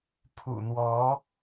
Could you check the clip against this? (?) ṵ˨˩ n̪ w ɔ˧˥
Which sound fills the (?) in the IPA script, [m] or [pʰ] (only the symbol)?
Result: pʰ